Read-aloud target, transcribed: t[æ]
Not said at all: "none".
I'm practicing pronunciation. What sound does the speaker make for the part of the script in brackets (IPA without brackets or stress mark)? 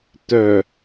œ